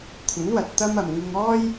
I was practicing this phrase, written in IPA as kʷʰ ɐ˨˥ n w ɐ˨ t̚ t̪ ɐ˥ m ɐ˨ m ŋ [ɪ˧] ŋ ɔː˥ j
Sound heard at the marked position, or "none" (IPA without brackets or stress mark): ɪ˧